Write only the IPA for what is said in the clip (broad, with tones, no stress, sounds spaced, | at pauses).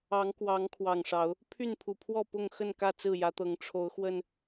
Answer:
ɑ˨˦ ŋ k w ɑ˨˦ ŋ kʰ w ɑ˨˩ ŋ ʂ ɑ˨˦ ʊ̯ | pʰ y˥˨ n pʰ u˨˩ pʰ w ɔ˥˨ p ʊ˥˨ ŋ x ə˥˨ n k ä˥˨ t͡s ɹ̩˥˨ j ä˨˦ t̪ ɤ˨˦ ŋ ʈ͡ʂʰ o˨˦ ʊ̯ x w ə˨˩ n